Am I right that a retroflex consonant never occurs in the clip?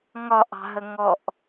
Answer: yes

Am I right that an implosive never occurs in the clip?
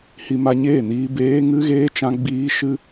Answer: yes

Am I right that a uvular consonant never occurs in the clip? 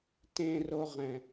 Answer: no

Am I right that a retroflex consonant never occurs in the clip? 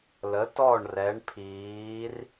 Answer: no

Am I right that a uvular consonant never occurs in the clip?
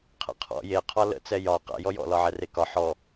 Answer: no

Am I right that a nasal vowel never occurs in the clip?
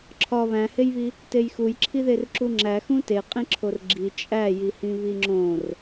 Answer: no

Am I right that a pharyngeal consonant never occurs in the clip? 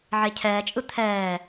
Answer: no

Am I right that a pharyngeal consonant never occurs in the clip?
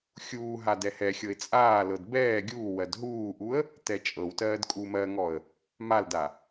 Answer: yes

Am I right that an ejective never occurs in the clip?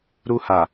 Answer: yes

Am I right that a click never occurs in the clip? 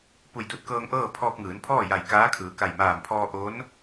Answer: yes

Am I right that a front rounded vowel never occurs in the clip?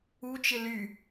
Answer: no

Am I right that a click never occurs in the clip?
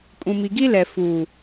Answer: yes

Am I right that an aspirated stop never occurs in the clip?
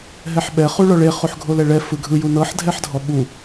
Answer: yes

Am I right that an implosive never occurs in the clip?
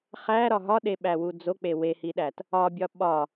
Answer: no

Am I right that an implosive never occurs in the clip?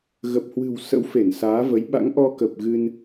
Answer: no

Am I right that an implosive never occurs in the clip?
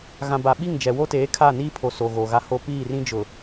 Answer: no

